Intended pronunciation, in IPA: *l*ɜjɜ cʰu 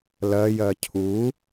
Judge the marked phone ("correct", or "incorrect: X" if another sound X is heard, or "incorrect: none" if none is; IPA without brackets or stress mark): correct